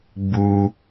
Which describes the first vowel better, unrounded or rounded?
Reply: rounded